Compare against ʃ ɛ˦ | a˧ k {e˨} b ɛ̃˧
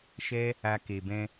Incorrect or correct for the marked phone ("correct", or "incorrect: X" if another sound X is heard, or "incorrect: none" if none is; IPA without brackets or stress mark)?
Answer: correct